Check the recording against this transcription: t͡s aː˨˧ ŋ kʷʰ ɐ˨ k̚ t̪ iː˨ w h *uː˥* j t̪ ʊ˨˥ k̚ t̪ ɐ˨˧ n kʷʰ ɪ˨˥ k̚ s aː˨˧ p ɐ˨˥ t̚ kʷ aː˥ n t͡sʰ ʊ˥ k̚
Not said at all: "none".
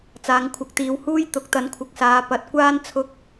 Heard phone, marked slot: uː˥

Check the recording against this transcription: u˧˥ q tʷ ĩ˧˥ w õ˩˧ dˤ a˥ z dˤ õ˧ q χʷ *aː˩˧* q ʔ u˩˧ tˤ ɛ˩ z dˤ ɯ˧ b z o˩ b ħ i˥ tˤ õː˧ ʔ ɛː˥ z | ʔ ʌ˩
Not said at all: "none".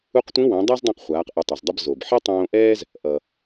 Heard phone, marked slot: aː˩˧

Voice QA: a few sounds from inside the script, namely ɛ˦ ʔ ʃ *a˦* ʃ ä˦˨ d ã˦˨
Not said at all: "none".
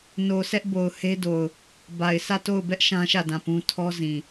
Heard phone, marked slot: ã˦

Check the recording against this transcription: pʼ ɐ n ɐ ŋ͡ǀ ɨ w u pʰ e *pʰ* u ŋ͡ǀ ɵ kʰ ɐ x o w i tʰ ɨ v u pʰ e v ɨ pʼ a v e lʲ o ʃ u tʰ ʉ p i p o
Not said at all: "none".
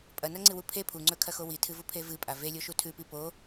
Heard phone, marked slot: pʰ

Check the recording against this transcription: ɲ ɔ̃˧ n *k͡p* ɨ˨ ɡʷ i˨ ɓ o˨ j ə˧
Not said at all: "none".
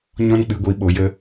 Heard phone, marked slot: k͡p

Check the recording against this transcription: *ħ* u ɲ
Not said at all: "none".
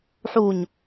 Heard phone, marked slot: ħ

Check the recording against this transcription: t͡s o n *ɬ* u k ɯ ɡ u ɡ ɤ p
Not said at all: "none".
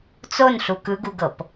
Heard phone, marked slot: ɬ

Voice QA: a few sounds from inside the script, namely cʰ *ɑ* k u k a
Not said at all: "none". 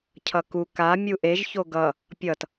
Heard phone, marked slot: ʌ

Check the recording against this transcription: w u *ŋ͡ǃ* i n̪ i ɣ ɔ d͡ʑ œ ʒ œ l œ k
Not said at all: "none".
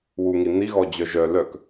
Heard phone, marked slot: ŋ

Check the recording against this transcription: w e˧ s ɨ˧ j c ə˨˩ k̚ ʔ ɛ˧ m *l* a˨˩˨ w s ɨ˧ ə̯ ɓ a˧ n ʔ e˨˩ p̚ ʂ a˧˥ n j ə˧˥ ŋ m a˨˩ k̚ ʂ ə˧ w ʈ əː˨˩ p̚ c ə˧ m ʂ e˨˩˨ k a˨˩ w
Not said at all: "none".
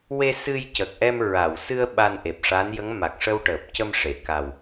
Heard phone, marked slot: ɹ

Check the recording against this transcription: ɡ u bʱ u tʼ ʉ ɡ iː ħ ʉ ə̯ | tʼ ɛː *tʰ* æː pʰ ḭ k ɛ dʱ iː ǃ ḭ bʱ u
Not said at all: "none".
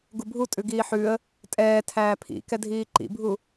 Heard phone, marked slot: tʰ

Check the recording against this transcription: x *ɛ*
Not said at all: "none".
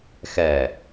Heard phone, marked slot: ɛ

